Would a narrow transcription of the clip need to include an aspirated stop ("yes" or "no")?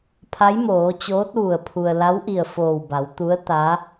yes